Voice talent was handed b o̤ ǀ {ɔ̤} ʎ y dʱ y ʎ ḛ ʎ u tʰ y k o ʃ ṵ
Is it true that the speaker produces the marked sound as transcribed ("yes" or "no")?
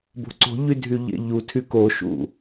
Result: no